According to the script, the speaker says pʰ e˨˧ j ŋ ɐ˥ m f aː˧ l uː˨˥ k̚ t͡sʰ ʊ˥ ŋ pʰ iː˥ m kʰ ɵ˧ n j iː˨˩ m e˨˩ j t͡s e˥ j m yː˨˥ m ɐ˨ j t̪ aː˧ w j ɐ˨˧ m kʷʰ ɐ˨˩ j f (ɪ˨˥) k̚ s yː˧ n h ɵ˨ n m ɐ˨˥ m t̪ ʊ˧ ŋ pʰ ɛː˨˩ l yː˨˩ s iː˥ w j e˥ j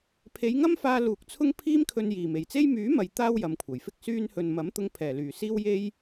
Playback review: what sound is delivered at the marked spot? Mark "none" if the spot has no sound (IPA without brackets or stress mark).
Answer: ɪ˥